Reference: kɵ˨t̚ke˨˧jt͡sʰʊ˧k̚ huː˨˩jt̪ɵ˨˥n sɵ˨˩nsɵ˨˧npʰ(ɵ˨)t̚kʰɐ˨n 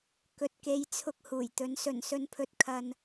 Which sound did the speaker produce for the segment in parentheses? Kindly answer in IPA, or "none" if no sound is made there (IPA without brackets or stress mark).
ɵ˨